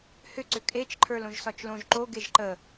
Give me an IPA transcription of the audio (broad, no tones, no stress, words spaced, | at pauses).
hʏ ǀʏkʼet͡ʃ ǃʰə˞lõʒsɒt͡ʃlõʒ ǃo ɡeʒǃə